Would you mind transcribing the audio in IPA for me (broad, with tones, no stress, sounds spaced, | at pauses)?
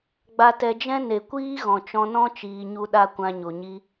ɡ͡b a˧ t ɛ˧ d͡ʒ ɛ̃˦ n e˨ kʷ iː˦ ɣ ɔ̃˨ t͡ʃ ɔ̃˧ n ɔ̃˦ t͡ʃ iː˧ ɲ u˦ ɗ a˦ kʷ ã˧ ɲ o˨ ɲ i˧